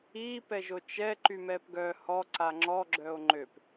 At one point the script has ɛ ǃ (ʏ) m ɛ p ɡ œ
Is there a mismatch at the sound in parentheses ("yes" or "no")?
yes